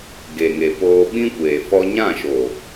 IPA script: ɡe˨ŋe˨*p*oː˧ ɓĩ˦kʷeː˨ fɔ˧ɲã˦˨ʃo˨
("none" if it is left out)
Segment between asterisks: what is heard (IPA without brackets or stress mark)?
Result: p